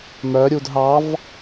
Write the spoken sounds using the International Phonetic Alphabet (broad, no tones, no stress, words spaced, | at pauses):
mœ ɾʲudɦɑv